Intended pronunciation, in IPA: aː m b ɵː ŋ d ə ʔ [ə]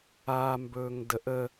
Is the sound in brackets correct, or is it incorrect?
correct